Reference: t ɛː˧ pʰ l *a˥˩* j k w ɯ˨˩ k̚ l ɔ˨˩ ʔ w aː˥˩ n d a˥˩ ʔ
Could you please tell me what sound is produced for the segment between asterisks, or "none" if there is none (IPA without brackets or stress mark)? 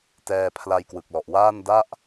a˧